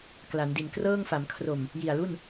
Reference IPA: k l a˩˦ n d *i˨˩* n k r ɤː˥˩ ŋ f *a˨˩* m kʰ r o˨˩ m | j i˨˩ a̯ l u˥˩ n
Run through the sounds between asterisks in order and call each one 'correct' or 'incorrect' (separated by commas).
correct, incorrect